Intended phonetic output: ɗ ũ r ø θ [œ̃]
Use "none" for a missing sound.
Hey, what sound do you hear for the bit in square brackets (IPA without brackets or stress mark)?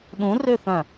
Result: œ̃